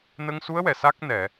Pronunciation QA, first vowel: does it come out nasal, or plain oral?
oral